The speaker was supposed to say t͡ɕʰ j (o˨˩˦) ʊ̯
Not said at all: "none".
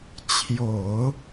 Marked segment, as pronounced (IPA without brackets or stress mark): o˨˩˦